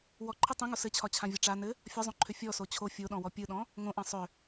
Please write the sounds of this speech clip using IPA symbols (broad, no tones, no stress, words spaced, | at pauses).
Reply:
wɔǃʰɯ tˤẽŋo sɘt͡ɕʰɒt͡ɕʰãvʲɒ ʈ͡ʂa nɘ | fʲɒzˤõǃʰʏ fʲɔso t͡ɕʰo fʲoɗɔ̃wɔ pʲɯɗɔ̃ | ŋõʔã sˤʏ